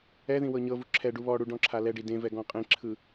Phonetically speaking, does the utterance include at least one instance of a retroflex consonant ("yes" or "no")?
yes